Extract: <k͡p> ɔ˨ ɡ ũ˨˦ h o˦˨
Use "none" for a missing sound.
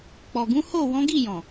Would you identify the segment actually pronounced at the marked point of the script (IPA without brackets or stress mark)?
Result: k͡p